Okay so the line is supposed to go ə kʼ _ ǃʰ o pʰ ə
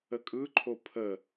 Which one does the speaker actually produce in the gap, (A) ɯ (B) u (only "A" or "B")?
A